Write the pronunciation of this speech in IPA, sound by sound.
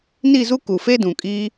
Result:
n i˦˨ z u˦ k u˨ f e˦ d ũ˨ kʼ iː˦

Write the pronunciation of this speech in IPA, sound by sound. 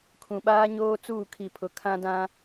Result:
kʰ ũ˨ ɓ aː˦ ɲ oː˦ t͡s uː˦˨ kʰ i˨ pʰ ʊ˨ kʰ ã˦ d ã˦

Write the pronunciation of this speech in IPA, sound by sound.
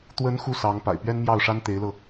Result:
t̪ w ə˧˥ n x u˥˩ s ɑ˧˥ ŋ p a̰˨˩ ɪ̯ p ɥ ɛ˥ n m j ɑ˥˩ ʊ̯ ʂ a˥ n t̪ e˧˥ ɪ̯ l ɤ˧

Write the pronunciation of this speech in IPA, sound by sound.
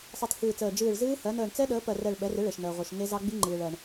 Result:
sˤ ɛ˦˥ t h ɨː˦˨ t͡s əː˦˨ d͡ʒ ɨː˦˨ ɭ z ɨː˦˥ h ɜ˨˥ n əː˦˨ ɳ t͡s ɛ˦˥ ɗ əː˨˥ p ɜ˦˨ r ɛ˦˨ ɭ ɓ ɛ˨˥ r ɨ˨˥ ɭ e˨ ʃ n əː˨ ʁʷ e˨ ʃ ŋ e˦˥ z ɑ˦˥ ɡ͡b i˦˥ ŋ͡ǃ ɨː˨ ɭ ɜ˨ ɳ

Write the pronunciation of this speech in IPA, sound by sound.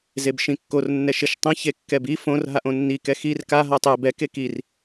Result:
z e b ʃ ĩ kː o r nː ɛ ʃ e ʃ tˤ ĩ ç e kː ɛ b i f õ r ɦ a ʔ õ nː i k ɛ x i r k a ɦ a tˤ e b ɛ k e k i r

